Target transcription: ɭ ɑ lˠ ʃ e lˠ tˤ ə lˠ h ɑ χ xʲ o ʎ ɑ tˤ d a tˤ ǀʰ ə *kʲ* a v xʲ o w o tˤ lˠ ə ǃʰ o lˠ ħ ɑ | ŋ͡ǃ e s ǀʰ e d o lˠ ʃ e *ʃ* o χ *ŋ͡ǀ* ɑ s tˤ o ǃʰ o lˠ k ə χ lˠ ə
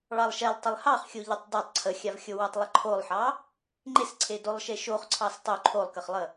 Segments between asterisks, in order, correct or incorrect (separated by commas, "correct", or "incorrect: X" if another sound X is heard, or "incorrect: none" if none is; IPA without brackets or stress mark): incorrect: xʲ, correct, incorrect: ǀʰ